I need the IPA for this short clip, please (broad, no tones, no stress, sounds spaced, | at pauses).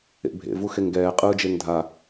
ḛ bʱ ḛ v u x e ŋ ɡ ɛː qʼ ɯː d͡ʒ e ŋ dʱ a